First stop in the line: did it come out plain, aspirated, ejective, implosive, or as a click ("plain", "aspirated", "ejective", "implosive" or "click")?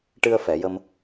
plain